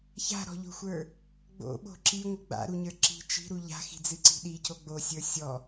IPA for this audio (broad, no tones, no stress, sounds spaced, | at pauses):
ç a̤ ɾ ɔ̤ ʎ o̤ xʷ ə˞ | ɡ͡b o̰ ɓ o̤ ǁ i ŋʷ ə ɡ͡b a̰ ɾ u ɲ ə˞ ǁ i̤ t͡ʃ i̤ ɾ u ʎ a̤ x i̤ d͡z ɨ ǀ i̤ ɗ i c o ɡ͡b o sʲ ə˞ sʲ ɔ